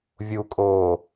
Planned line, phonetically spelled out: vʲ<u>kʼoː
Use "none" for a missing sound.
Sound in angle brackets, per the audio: u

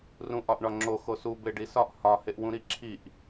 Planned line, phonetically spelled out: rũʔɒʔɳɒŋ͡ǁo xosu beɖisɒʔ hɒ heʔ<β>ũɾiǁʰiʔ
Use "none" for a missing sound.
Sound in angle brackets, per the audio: w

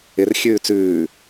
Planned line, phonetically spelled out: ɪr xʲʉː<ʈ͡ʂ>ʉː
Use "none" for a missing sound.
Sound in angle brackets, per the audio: t͡s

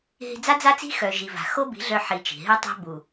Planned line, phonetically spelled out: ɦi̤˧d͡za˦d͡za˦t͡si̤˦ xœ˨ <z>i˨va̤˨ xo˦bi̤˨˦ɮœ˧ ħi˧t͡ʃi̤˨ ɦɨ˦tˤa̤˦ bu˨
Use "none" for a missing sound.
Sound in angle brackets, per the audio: ʒ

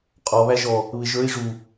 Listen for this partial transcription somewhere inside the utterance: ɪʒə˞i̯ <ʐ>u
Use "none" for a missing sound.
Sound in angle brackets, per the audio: ʐ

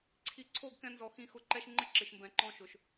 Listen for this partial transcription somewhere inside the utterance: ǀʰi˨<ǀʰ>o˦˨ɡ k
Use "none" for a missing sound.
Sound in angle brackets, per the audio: ǀʰ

